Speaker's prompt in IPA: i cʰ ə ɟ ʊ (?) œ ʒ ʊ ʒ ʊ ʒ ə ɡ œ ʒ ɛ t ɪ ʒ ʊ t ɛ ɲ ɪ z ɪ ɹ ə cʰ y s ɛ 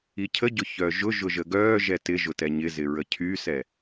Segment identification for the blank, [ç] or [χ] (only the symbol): ç